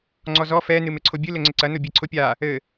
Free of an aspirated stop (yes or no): no